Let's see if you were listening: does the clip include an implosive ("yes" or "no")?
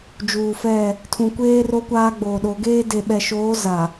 yes